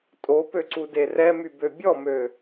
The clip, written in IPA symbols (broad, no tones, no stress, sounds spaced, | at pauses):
tʼ o p ø ǀ u d e r ɛ m y b ø bʲ ɔ m ø